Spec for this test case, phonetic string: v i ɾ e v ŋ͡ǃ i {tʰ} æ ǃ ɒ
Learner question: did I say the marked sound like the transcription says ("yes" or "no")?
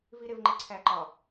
no